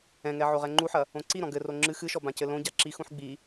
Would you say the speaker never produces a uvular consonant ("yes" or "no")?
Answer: no